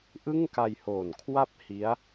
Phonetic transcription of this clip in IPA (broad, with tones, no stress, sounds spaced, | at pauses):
ʔ ɯ˥˩ ŋ k a˧ j h o˨˩ n kʰ w a˥˩ p̚ h i˦˥ a̯